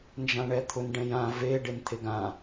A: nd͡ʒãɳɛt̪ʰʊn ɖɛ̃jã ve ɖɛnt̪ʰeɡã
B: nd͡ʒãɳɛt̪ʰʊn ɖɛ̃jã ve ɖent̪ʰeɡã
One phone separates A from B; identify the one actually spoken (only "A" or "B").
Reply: B